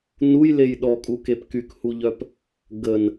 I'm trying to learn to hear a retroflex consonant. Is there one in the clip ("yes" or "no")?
no